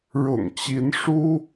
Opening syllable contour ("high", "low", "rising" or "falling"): low